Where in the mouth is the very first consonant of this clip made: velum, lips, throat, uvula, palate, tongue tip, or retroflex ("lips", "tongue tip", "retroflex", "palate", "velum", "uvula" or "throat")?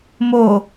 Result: lips